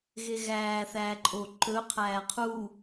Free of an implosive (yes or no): yes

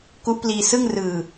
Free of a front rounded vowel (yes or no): yes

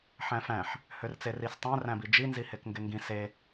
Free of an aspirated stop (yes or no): yes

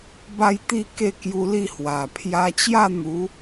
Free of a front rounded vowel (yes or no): yes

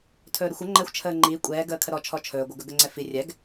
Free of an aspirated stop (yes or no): no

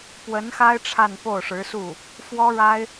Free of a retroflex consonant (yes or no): no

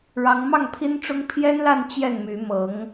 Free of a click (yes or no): yes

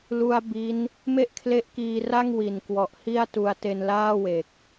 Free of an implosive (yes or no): yes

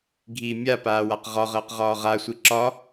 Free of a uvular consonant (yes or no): no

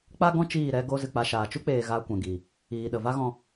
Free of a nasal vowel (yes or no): no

